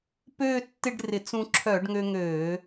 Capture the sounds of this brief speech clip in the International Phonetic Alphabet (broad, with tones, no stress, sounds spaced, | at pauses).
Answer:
p øː˥˧ tː ɪ˥˧ ɖ r ɪ˧˩˧ t͡s ũ˧ ǁʰ œ˧˩˧ ɖ ŋ ø˧ ŋ øː˧˩˧